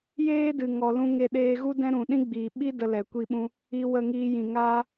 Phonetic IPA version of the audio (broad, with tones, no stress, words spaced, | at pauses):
jeː˦dɨ˨ ŋɔ˨lũ˧ ŋe˧ɗeː˧ɣu˦dɛ̃˦ ɾũ˨ɗĩ˦ɡ͡biː˨ɓi˦ də˧lɛ˨kʷi˧ɓũ˧ | i˧ wə˧ŋiː˧ jĩ˨ŋaː˦